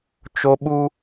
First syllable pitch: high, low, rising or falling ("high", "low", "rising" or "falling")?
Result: high